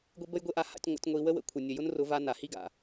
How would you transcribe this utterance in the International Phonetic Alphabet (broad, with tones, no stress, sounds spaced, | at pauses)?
ɡʷ e˦ b ə˦ j ɡʷ e˦ ʔ a˧ h a̰˧ tʲ ŋʷ a̰˧ tʲ ŋʷ i˧ w ə˦ w ə̰˨ kʷʰ ə˨ nʲ ə˨ j ʊ˦ n r ʊ˨˦ v a˧ n a˨ h i˦ ɡ a̰˨